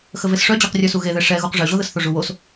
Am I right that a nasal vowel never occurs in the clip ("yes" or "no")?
yes